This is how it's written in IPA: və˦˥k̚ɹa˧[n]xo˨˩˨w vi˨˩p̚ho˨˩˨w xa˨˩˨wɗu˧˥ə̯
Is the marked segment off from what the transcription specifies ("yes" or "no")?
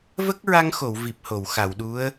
yes